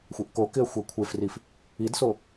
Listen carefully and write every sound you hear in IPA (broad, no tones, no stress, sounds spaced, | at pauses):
xʷ ɛ ʔ k o k ɪ ə̯ xʷ a kʷʰ e f r i f | i d s o